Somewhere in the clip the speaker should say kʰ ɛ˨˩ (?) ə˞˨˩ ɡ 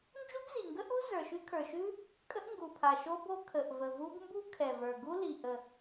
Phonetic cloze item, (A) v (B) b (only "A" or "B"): A